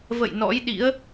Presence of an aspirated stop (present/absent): absent